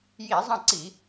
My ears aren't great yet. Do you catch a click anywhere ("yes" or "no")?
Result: yes